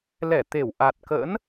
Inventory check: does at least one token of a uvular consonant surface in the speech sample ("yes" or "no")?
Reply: no